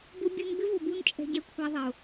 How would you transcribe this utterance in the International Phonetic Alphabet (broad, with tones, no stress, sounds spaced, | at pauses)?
b ʊ˧ bʲ u˧ n b ɪ˦ v ʊ˨ b u˧ n t͡ʃʼ ɛ̤˧ ɟ ɛ˧ kʷʰ a˧ ðˤ e˨ ʊ̯